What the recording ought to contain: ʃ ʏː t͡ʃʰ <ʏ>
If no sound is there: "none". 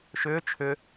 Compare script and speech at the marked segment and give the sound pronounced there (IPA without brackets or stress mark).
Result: ʏ